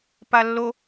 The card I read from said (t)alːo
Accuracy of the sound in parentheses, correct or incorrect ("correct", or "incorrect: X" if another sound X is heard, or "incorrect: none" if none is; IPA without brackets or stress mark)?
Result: incorrect: p